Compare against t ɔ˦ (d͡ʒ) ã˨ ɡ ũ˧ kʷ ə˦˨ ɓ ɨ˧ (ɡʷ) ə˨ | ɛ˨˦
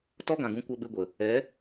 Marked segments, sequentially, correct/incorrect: incorrect, correct

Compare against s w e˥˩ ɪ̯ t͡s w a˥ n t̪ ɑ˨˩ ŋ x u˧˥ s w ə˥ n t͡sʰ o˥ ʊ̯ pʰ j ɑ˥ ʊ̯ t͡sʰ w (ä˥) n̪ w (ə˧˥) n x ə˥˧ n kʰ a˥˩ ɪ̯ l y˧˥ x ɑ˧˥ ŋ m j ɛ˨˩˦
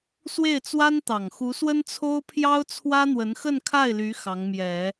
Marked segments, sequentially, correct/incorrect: correct, correct

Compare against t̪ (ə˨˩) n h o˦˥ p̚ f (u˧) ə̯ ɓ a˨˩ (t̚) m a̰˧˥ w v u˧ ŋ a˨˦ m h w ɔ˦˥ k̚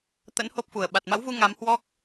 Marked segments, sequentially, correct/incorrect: incorrect, incorrect, correct

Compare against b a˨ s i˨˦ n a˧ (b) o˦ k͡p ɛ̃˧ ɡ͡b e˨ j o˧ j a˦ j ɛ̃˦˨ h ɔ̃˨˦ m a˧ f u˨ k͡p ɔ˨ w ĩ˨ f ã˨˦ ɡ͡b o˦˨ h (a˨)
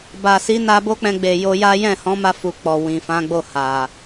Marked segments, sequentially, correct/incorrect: correct, correct

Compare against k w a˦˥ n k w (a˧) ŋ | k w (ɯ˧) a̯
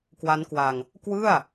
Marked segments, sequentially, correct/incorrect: correct, incorrect

